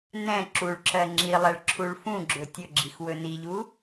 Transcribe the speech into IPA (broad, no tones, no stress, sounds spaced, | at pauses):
n ɛ̃ ǁ u ɭ ǁ ɜ ŋ͡ǁ i lˠ ɛ ɭ ǁʰ u ɭ f ũ ɡ͡ǁ ɵ tʲ ɵ ɡ͡ǁ i x w ɵ n i ʎ u